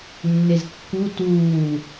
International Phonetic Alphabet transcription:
nː e z kː u t uː

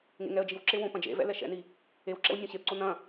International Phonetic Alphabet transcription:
ŋ ḛ ŋ ɛ ə̯ d͡ʒ i w ǁ e w õ p ɐ̃ d͡ʒ ḛ v ɛ̰ l ɛ ʃ ɛ̰ n i | e w ǁ ɛ̰ w nʲ õ ɕ e p ǀ o n ɐ̃

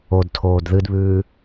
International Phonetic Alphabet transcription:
o d tʰ oː d ð ɨ d β ʉː

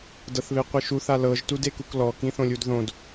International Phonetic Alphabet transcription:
d ɤ θ β e qʷ ɯ ʃ u θ a l ɤ ʒ t u d e k u k l ɔ k ĩ θ õ lʲ u d ð õ d

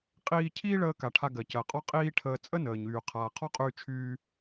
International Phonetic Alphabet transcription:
qʼ iː˧ cʰ iː˥ ɭ əː˧ k a˩ ʈʰ a˧ ɡ ɜ˩ c ɜ˩ qʼ ɔ˥ qʼ iː˥ ʈʰ əː˧ t͡sʼ ə˥ n əː˩ ɲ yː˩ qʰ aː˩ qʰ ɔ˥ qʼ yː˧ t͡ʃʰ yː˧

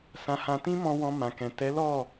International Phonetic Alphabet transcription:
s ã˧ h ã˧ t ĩ˦ m ɔ̃˧ w ɔ̃˧ m ã˨ k ɛ̃˨ t ɛ˨˦ l ɔ˦˨

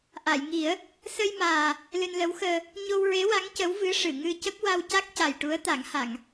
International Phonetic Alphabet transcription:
ʔ a˨˩˨ j ŋ i˨˩˦ ə̯ | s ə˧ j m aː˨˩ | l ɨ˧ n l ə˧˥ w x əː˧ | ɲ o˧ w ɹ e˧˥ w a˧˥ ŋ c ə˧˥ w v ɨ˧˥ ʂ ɨ˨˩˨ ŋ ɨ˧ c ə˦˥ k̚ w a˧ w c a˦˥ k̚ c a˨˩ j ʈ u˧˥ ə̯ t̪ a˨˩˦ ŋ h a˨˩˨ ŋ

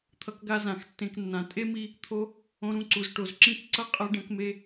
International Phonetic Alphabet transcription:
t̪ʰ ʌ˧ k ɡ a˧ z ã˨ x tː ẽ˧ k nː ã˨ tʼ e˦ m i˧ | t̪ʰ o˧ | õ˧ ɾ ũ˧ ǀ u˨ z ʈ o˨ z ǁ ĩ˦˨ k ǀ ʌ˦ qʼ ʌ˦ ɖ ɛ̃˦ k m e˦

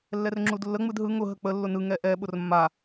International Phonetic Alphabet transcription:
lː ɛ r ŋ͡ǁ u d lː ə ŋ͡m ɯ d ɦ ɯ ŋ ʊ ɦ ə k͡p ə lː ʊ n ɯ ŋ ɛ ʔ ɛ ɓ ʊ r mː a

